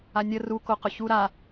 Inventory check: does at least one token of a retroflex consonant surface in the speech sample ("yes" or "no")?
no